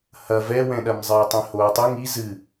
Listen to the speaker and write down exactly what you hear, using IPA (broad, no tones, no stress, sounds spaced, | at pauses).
h ɐ v ɛ w ɛ̃ ɗ ɐ m zˤ ɨː tˤ ɛ̃ h oː tˤ ɘ ŋ i z ɨ